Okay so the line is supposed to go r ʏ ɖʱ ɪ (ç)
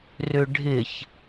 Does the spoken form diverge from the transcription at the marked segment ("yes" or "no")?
no